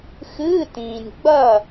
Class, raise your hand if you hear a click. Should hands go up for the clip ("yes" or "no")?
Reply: no